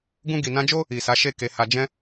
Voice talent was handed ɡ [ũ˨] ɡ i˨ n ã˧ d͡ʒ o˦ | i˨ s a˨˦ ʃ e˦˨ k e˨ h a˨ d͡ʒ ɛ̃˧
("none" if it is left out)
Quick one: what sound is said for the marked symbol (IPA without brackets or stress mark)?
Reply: ũ˧